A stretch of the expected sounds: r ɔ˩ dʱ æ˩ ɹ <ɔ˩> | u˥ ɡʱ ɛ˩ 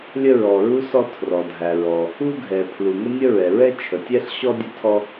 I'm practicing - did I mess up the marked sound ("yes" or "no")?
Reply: no